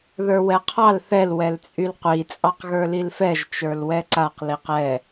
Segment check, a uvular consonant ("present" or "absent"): present